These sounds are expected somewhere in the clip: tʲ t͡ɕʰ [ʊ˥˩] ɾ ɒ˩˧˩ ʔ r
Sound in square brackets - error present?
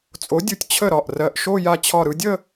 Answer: yes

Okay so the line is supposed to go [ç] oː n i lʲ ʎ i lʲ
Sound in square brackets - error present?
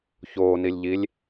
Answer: no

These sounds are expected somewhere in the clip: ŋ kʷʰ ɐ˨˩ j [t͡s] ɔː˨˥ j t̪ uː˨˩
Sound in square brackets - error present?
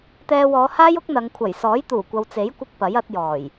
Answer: yes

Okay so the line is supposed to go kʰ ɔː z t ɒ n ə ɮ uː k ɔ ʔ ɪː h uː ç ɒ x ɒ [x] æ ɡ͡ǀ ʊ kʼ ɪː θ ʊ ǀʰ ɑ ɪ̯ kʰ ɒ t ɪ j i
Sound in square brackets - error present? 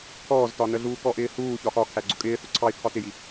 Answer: yes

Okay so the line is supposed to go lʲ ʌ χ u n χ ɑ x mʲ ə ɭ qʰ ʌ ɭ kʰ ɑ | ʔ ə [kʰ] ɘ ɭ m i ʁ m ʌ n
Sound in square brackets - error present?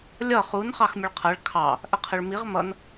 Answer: yes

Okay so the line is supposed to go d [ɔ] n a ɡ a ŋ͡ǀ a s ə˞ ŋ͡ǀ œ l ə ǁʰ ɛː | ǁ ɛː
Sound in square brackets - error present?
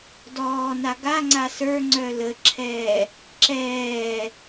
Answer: yes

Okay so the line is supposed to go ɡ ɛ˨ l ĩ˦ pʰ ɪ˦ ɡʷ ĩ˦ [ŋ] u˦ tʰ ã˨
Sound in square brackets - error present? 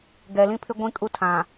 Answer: yes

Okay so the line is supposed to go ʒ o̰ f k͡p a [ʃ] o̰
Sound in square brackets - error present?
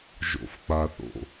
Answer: yes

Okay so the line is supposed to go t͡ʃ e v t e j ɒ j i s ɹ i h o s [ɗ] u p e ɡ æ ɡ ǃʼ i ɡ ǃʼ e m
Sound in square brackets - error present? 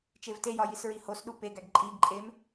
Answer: no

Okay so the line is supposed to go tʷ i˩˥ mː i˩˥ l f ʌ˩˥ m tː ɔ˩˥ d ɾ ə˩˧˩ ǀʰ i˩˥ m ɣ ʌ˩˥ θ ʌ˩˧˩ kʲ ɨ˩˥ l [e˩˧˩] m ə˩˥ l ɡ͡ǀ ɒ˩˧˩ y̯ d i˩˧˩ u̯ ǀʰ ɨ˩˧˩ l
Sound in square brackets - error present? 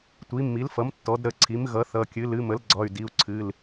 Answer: yes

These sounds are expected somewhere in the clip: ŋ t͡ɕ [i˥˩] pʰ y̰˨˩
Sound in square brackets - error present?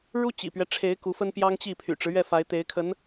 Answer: no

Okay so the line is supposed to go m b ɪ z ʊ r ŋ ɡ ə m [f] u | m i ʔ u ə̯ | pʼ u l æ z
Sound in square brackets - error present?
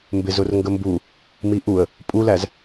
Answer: yes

